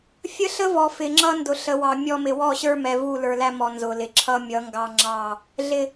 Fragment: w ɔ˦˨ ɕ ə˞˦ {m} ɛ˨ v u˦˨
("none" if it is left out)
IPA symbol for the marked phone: m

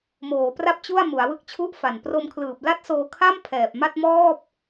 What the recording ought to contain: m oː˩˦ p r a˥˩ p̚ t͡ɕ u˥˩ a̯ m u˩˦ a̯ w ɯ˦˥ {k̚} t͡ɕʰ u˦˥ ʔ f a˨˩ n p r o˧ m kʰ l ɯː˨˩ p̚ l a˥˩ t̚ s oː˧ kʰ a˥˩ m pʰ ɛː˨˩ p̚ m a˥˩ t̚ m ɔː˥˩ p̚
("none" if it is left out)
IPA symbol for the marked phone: k̚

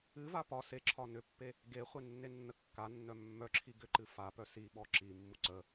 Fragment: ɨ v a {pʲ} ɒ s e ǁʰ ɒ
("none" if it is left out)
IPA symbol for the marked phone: p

